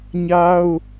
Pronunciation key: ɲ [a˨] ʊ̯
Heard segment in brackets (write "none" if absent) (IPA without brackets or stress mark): a˦